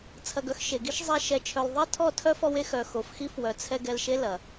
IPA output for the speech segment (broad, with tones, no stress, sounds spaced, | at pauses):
t͡sʰ ɐ˨ ɡ œ˧ x ʃ e˨ ɡ i˦ ʃ zˤ ɛ˧ ʃ ɛ˨ t͡ʃʰ œ˨ l ðˤ e˦ tʰ ɔ˦˨ tʰ œ˦ f ɔ˧ w e˦ x œ˨ x o˨ f x i˦ f w œ˨ t͡sʰ ɛ˧ ɡ ɛ˧ l ʃ e˦ l ɐ˨